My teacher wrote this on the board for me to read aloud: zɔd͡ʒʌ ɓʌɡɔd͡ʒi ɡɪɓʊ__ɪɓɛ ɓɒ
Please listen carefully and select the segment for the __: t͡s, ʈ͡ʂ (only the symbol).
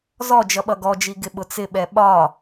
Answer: t͡s